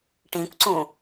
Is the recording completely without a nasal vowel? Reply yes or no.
no